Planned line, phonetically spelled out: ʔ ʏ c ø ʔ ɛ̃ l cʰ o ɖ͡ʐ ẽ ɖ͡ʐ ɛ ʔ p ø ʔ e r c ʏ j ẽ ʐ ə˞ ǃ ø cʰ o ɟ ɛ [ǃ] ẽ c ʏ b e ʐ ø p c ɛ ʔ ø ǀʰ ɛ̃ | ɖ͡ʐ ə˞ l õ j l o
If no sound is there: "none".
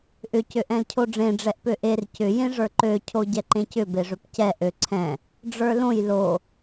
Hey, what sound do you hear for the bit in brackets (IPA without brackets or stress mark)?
ǃ